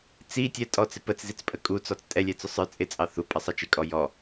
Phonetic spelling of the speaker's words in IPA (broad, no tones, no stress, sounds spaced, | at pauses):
t͡s i tʲ ɛ tʼ ɔ t͡s ɪ p ə t͡s z i t͡s pʼ ə kʼ u t͡s ɔ t͡s tʼ ɛ lʲ ɛ t͡s ʊ sˤ ə˞ t͡sʼ ɪ t͡sʼ ɑ θ u pʼ ʌ sˤ ɑ t͡ʃ ɪ kʼ ɔ j ɔ